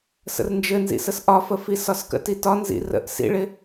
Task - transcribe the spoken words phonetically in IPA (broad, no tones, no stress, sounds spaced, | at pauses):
s ə̰ r n d͡ʒ ɘ n z ḭ s ə s ʔ ɒ f ə f i s ɒ s k ə̰ t i t ɒ n z ḭ r ə̰ ʔ s ḭ ɭ ɪ